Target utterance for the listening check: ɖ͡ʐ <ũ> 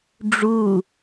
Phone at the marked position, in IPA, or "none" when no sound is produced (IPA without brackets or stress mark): u